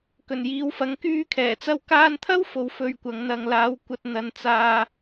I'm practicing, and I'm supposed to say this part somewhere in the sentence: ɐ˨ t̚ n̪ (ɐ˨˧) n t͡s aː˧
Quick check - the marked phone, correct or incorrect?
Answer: correct